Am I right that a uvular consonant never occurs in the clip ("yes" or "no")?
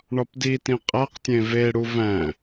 no